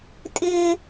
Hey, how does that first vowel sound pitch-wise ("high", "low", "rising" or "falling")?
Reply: high